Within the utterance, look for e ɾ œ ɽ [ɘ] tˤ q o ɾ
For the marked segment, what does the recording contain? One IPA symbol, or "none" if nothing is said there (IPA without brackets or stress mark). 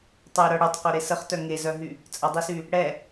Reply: ø